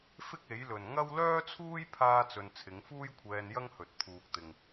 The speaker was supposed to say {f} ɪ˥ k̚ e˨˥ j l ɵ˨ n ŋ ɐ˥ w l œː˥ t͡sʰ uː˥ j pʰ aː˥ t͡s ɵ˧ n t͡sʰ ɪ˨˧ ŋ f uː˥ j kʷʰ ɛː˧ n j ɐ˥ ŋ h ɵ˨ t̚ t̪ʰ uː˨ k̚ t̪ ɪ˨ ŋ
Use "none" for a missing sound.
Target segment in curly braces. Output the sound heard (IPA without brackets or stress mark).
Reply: f